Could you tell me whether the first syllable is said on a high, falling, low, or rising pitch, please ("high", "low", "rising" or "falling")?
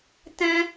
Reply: high